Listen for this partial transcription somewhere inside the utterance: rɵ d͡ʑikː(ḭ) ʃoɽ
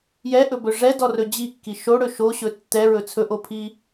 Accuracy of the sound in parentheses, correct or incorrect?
incorrect